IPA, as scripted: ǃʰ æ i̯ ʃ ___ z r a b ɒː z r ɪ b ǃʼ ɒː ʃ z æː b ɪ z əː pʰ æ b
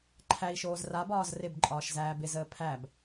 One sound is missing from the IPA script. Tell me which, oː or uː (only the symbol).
oː